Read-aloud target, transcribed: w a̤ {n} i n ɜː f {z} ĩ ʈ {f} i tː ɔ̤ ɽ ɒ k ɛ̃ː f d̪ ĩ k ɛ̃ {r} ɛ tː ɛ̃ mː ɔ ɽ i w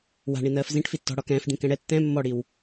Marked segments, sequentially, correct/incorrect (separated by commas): incorrect, correct, correct, incorrect